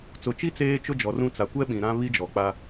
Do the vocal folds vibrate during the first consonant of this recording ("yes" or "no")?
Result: no